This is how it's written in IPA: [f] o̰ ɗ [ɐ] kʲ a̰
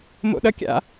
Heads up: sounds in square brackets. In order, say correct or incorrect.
incorrect, correct

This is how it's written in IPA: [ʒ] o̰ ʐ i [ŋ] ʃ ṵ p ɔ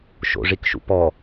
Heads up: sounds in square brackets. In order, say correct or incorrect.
incorrect, incorrect

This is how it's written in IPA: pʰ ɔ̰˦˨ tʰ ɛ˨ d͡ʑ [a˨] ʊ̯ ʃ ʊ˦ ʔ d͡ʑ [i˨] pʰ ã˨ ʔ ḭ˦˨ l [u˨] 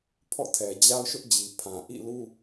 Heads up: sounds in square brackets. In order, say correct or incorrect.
incorrect, correct, incorrect

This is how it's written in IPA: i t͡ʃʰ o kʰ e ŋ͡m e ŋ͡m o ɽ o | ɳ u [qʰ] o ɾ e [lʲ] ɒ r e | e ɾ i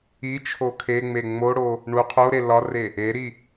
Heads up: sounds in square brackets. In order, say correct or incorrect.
correct, incorrect

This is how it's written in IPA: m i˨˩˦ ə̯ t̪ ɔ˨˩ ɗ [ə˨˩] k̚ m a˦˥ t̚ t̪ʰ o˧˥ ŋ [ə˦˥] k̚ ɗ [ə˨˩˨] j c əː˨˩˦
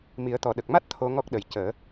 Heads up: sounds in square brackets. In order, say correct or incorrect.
correct, incorrect, incorrect

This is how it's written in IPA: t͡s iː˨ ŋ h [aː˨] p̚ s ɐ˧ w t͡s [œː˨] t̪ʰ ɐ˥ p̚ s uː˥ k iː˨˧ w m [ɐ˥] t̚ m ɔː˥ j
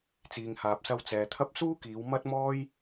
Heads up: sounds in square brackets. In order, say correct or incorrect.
correct, incorrect, correct

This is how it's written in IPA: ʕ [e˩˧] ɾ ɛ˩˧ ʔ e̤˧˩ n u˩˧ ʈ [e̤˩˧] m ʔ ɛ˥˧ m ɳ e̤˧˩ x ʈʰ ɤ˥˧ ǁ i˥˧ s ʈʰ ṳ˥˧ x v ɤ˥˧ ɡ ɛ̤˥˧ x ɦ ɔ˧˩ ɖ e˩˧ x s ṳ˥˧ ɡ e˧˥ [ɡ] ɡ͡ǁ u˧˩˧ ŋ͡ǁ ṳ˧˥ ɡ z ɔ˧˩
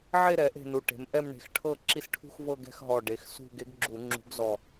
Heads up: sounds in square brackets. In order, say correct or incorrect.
incorrect, correct, correct

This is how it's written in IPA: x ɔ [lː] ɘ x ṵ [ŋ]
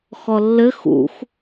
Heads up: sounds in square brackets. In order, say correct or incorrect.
correct, incorrect

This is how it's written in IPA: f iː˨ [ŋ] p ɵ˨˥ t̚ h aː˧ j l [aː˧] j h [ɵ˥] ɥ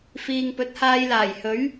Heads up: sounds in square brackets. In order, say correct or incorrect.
correct, incorrect, incorrect

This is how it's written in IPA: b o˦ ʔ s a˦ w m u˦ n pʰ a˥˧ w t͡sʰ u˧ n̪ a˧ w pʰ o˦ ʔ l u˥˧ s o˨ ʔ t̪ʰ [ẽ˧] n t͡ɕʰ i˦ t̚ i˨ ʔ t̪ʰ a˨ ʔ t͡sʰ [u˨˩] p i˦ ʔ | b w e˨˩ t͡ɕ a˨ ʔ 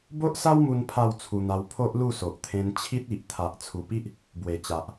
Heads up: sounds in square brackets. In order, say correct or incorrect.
correct, correct

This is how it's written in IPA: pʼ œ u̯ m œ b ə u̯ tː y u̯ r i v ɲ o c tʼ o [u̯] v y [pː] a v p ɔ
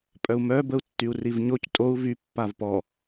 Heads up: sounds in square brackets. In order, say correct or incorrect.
correct, correct

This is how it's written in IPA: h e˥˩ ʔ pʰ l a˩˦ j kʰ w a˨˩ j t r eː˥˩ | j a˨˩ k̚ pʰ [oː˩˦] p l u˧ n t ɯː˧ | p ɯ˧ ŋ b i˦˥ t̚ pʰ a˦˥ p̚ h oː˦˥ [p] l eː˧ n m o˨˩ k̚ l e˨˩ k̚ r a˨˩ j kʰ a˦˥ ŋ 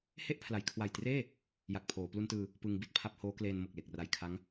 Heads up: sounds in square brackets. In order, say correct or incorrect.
correct, incorrect

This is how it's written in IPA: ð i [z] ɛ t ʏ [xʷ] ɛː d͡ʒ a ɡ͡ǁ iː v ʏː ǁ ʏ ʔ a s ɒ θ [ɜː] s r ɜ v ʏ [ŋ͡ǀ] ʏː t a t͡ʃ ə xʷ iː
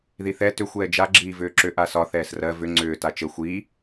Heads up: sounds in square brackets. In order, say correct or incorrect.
incorrect, correct, incorrect, correct

